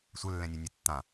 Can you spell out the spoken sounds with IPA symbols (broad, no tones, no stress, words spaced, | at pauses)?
sʷɘlːɛ̃nʲenʲe tːã